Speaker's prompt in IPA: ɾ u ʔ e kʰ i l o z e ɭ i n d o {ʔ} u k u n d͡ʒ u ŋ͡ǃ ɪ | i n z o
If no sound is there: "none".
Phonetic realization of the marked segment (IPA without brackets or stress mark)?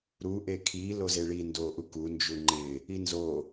ʔ